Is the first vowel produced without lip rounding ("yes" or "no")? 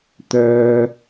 no